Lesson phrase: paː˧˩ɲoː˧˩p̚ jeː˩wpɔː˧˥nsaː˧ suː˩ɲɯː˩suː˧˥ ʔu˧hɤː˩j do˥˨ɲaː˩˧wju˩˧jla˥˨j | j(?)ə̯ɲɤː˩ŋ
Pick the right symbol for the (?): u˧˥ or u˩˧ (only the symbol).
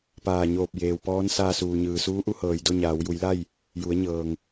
u˩˧